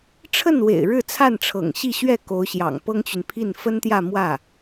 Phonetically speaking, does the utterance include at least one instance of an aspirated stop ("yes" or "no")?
yes